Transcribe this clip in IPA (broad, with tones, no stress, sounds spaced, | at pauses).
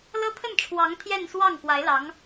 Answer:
l ɤ˥ t̪ʰ ə˥˩ n ʈ͡ʂʰ w ɑ˧˥ ŋ t̪ʰ j ɛ˥˧ n s w ɑ˥˩ ŋ k w a˧˥ ɪ̯ l ɑ˧˥ ŋ